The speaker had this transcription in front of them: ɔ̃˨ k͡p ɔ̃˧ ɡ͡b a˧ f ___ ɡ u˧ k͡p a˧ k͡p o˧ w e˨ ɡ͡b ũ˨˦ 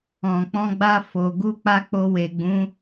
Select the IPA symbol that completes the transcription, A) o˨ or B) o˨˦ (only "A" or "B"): A